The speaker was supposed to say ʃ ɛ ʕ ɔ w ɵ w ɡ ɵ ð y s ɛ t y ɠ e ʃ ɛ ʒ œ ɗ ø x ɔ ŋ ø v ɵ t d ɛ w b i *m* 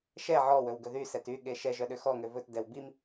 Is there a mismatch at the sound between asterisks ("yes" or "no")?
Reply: no